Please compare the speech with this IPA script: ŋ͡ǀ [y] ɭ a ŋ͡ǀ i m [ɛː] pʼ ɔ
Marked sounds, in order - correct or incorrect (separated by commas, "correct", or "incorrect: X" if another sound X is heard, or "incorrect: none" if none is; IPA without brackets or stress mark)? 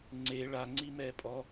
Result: incorrect: e, correct